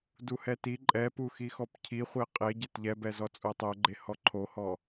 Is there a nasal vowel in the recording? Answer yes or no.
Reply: no